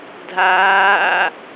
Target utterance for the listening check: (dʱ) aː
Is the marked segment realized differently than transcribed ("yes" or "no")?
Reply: no